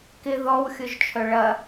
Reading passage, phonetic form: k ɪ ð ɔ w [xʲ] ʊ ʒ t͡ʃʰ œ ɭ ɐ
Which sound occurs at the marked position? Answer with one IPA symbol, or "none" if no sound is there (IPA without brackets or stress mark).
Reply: xʲ